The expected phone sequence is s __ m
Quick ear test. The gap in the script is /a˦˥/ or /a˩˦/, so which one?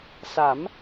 a˩˦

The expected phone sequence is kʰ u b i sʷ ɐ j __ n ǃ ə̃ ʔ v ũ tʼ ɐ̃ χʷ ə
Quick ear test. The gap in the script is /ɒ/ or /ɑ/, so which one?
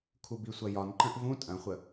ɒ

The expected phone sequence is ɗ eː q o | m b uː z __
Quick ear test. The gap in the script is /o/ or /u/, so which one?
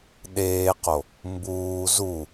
u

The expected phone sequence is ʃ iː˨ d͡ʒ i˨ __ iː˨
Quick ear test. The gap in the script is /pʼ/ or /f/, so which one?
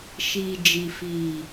f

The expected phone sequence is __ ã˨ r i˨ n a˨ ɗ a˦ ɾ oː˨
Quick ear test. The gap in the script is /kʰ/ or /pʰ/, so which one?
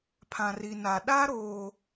pʰ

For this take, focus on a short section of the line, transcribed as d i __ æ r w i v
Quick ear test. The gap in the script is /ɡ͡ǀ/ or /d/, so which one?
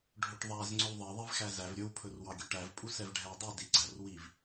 ɡ͡ǀ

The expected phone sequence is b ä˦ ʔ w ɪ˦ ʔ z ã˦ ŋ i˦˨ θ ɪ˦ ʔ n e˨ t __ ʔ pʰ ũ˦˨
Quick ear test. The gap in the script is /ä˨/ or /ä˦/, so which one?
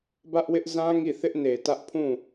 ä˦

